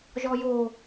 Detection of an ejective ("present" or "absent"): absent